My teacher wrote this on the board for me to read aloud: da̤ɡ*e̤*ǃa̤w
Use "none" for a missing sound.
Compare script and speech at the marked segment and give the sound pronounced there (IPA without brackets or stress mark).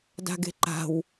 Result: e̤